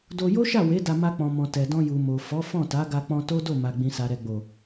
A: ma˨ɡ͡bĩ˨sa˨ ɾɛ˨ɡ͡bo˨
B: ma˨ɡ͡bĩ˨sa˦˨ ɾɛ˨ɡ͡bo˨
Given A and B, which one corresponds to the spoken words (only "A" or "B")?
A